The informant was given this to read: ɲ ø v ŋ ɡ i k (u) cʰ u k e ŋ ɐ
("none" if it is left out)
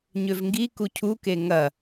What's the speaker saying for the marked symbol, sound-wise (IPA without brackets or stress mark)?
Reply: u